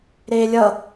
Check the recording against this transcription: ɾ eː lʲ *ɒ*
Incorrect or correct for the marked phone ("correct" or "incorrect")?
incorrect